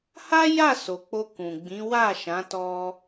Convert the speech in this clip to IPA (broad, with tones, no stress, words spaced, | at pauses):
ha˦ja˦˨so˨ k͡po˧kũ˨ɡ͡bĩ˨˦ wa˦˨ʃã˨˦ tɔ˦